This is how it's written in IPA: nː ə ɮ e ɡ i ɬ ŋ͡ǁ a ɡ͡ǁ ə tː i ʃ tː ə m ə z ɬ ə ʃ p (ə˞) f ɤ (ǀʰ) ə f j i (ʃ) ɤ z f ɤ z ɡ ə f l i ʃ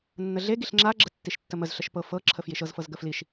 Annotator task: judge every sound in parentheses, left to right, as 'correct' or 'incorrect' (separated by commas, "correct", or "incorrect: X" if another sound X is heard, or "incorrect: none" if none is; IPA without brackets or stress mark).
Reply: incorrect: ɤ, incorrect: ǁʰ, correct